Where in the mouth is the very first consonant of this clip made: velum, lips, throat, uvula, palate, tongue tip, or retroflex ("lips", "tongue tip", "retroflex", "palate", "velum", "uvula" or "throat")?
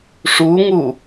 retroflex